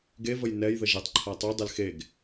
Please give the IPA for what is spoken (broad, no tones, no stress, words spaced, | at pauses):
ɡevəj nɛj ðəʒetˤ ǃʰatˤu dˤelxeɡ